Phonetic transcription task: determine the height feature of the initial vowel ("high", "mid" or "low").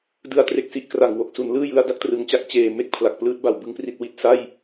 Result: high